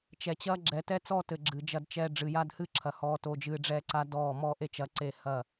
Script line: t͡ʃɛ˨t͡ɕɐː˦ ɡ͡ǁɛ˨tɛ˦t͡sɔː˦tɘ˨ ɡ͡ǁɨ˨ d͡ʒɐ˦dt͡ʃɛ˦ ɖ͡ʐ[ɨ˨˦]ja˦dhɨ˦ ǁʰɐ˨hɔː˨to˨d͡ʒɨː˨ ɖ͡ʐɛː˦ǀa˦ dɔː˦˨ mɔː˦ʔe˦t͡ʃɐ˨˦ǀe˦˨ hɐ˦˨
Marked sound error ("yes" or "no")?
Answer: yes